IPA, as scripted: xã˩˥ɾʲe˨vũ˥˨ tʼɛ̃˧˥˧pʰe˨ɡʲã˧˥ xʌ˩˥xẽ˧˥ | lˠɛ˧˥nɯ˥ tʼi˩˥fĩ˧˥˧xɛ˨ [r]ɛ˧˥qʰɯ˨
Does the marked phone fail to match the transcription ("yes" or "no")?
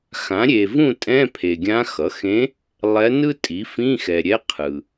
yes